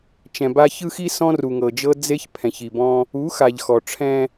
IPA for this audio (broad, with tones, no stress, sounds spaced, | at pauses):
t͡ʃ ɛ̃˨ b a˦ ç ɯ˦ x i˦ s ɔ̃˦ r u˨ ŋ ɤ˨ d͡ʒ ɤ˦ d͡z e˦ ç pʰ ɛ̃˨ ç i˨ b ɔ̃˦ | u˨˦ x a˨ ʎ x ɔ˨ ʈ͡ʂʰ ɛ̃˦